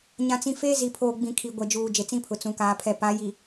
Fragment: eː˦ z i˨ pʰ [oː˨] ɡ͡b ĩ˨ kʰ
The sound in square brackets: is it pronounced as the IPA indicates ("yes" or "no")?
yes